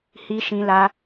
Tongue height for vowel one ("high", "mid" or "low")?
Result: high